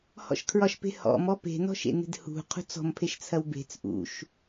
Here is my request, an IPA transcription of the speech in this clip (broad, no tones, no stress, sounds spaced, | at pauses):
h ɔ̰ ʃ kʰ ɹ ɒ ʃ p e̤ h ɔ̰ m ɔ p e̤ n ɔ̤ ʃ ḛ n e̤ d h ṳ qʰ ṳ t͡s ɔ̤ m pʰ e ʃ t͡sʰ ɐ w b e̤ t͡s ʔ ṵ ʃ